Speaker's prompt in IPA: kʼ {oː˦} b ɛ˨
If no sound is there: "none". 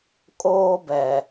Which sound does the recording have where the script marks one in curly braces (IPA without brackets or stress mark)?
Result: oː˦